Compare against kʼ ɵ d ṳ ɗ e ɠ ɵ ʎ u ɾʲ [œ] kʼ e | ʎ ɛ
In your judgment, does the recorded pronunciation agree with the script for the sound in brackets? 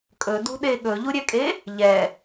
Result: no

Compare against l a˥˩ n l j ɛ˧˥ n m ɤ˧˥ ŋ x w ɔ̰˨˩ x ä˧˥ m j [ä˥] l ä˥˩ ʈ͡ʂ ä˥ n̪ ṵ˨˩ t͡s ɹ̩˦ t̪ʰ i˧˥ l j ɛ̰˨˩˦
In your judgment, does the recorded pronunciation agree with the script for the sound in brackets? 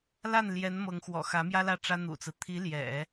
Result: yes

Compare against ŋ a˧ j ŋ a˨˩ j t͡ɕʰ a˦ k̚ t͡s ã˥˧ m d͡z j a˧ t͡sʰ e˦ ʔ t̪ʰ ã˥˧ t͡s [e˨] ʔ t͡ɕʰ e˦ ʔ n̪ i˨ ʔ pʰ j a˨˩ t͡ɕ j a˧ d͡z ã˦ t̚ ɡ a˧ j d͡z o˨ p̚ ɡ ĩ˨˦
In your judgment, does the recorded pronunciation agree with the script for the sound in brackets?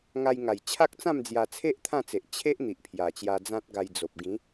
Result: yes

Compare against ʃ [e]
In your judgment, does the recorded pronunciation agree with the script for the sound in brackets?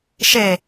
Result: yes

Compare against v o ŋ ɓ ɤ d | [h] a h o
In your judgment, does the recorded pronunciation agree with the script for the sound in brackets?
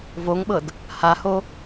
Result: yes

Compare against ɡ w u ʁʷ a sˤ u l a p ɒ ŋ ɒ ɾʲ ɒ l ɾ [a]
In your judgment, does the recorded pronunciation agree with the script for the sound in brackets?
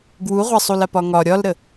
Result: no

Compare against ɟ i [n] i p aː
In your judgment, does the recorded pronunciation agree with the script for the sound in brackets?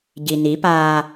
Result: yes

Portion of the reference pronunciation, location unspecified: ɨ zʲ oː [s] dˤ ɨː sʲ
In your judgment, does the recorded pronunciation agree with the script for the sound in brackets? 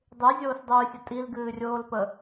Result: yes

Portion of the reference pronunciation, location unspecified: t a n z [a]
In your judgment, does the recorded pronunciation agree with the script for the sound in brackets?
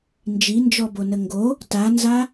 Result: yes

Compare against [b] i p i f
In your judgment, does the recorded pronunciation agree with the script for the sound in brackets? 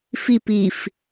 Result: no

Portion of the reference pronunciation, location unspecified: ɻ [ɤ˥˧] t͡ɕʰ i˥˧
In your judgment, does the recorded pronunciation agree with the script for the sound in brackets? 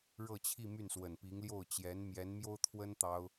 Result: yes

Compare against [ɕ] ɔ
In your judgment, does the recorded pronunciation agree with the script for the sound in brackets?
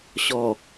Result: yes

